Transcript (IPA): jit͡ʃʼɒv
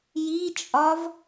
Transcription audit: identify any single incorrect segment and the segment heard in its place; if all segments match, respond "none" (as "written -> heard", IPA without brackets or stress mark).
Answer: none